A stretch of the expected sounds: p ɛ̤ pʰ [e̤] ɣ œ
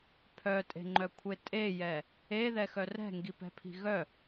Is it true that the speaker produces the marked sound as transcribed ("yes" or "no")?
no